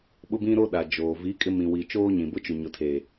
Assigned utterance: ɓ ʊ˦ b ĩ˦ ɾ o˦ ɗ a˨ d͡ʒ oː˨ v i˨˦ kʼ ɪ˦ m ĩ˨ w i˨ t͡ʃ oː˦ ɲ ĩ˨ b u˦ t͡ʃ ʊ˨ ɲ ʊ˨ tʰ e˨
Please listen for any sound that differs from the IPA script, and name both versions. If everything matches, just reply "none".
u˦ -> ʊ˦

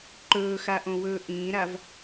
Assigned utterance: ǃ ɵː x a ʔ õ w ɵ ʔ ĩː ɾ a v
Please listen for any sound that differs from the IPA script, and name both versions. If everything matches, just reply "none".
ɵ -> ɵː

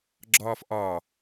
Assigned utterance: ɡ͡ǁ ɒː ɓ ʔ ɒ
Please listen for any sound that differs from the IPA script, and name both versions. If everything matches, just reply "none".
ɓ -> f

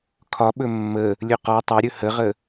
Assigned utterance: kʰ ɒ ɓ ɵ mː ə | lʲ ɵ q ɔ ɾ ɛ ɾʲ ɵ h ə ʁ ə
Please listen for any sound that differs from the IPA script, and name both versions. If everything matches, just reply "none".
ɾ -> tˤ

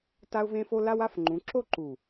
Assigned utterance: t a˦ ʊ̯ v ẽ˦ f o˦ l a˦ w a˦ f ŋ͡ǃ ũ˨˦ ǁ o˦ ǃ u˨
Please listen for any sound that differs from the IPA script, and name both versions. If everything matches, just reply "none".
none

